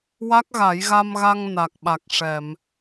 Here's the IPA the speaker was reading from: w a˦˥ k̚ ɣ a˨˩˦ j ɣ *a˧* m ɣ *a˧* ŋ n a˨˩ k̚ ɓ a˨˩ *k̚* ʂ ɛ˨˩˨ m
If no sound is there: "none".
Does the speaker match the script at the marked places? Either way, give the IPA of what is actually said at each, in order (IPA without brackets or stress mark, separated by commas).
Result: a˧, a˧, k̚